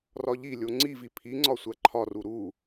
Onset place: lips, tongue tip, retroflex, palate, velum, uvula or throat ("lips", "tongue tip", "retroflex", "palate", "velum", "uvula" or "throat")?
tongue tip